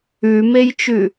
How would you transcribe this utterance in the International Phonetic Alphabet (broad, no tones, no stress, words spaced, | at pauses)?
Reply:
ʉmejt͡ʃʉ